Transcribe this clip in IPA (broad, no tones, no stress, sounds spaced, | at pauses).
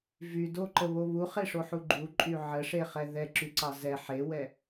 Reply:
v y d o ǃ ə β o β u χ e ʂ o ħ u ɡ͡ǃ u ǃʼ y ʕ ə ʂ e χ ɛ ð ɛ ǁ y ǀ ɑ z ɛ ħ e w ɛ